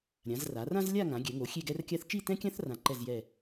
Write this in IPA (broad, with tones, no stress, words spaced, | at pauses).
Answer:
ɾʲã˩˧zra˩˧rã˥z lʲa˥˧ŋã˩˧ ɡʲɛ˩˧ŋo˩˧ xʲe˥˧ɡɛ˥rkʲa˥θ t͡ʃi˥˧tɛ̃˥kʲã˥θ rã˧ǃɛ˥˧zjɛ˥˧